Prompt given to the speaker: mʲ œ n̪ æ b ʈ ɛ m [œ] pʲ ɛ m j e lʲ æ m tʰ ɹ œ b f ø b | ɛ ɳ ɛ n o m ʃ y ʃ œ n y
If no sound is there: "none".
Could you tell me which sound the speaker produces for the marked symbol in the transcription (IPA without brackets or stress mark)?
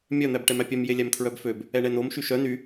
æ